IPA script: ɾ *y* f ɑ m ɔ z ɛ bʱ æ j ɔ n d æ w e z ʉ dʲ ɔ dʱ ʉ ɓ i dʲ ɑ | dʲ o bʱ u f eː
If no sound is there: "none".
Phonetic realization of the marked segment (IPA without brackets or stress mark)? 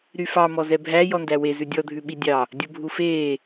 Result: y